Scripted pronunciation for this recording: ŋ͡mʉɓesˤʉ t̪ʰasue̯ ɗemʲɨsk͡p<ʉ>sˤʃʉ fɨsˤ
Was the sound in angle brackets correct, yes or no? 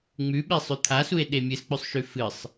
yes